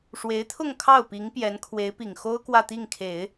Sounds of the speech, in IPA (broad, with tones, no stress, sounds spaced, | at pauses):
ʂ w e˧˥ ɪ̯ t̪ʰ ʊ˥˧ ŋ kʰ ɑ˥˩ ʊ̯ p i˧˥ ŋ p j ɛ˧˥ n kʰ w e˧˥ ɪ̯ p i˨˩ ŋ x o˥ ʊ̯ k w ä˥˧ t̪ i˥˩ ŋ kʰ e˨˩˦ ɪ̯